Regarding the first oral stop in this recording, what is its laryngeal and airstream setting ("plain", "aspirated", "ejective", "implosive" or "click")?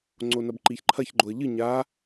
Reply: click